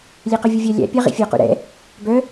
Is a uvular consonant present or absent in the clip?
present